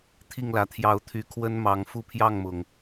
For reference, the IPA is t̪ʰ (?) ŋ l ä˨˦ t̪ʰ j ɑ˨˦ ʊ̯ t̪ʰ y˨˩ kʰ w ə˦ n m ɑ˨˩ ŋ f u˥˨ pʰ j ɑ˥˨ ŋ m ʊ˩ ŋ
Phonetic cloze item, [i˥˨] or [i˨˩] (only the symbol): i˥˨